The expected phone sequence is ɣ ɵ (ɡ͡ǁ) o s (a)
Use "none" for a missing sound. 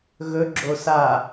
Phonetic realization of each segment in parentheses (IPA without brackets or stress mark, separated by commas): ɡ͡ǁ, a